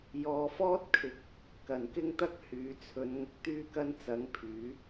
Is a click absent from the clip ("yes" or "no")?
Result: yes